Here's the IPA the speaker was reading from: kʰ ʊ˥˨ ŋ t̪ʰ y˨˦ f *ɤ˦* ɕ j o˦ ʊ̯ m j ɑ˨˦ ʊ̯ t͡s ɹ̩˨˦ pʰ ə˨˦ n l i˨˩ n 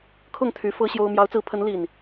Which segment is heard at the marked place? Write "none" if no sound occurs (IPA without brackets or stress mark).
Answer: ɤ˦